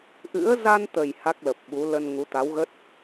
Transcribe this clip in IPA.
ʔɨ̰˧˥ə̯ za˧nt̪ə˨˩j ha˦˥k̚lə˨˩p̚ɓu˨˦ lə˧nŋu˨˦ t̪a˨˦wɣə˦˥t̚

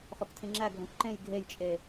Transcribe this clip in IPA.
χoktʰĩŋ͡ǁæɡʱõk ǃẽj ɡʱejt͡ʃʼe

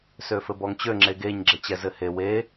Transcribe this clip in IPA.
søfɘbɔŋt͡ɕø ŋ͡ǁeɡeɲ ɡ͡ǁɘt͡ɕɛzɘhe we

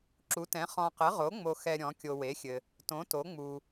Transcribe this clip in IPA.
ǁu˩˥tɛ̃˩˥ χɔ̃˨qɘ˩˥ʁo˩˥ ŋ͡mo˨xɛ˨ ɾʲɔ̃˩˥ kʲo˨we˩˥xʲɘ˨ | tõ˩˥to˩˥ ŋ͡mu˨

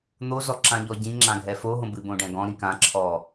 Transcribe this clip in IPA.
n̪ozɔ ǁãʎɔɟĩ ŋ͡ǁãɡʱɛfoɦõ bɨbõɖɛ̃ɡɔ̃ ɾĩkãǁʰɔ

